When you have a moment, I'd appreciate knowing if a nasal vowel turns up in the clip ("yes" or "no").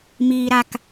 no